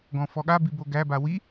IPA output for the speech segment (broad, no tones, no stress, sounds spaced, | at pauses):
ɡ ɔ̃ f ɔ ɠ a b i b o ɡ æ b a w i